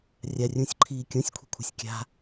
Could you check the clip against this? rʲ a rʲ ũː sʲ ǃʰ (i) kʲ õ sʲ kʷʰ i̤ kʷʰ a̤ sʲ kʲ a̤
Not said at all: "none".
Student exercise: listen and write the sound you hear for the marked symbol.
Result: iː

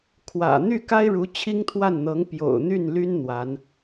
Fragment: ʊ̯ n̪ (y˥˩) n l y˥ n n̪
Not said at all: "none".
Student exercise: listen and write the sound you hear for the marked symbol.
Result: y˥˩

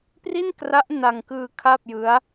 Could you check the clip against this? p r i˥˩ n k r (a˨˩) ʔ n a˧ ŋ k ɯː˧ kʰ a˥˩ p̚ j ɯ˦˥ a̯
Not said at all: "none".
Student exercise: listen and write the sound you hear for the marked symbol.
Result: a˦˥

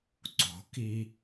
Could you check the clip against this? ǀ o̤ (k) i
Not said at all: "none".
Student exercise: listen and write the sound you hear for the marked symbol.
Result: k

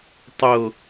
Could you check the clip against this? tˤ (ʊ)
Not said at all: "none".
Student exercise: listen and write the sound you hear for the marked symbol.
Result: ʊ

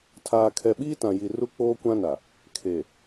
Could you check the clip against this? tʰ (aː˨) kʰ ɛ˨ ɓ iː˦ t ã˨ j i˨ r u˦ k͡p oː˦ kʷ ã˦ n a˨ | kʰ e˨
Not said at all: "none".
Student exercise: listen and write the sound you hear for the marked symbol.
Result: aː˨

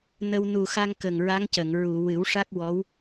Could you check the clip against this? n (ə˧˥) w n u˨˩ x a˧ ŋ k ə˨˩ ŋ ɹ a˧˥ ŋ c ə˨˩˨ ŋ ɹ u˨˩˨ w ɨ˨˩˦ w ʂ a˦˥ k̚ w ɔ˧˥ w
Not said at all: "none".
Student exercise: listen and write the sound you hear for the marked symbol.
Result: ə˧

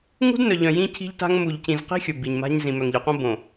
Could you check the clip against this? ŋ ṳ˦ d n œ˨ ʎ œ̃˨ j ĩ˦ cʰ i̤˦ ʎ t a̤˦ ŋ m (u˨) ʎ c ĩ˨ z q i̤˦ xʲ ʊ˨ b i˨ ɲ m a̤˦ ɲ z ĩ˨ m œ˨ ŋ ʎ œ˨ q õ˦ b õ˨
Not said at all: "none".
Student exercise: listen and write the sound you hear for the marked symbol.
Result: u˨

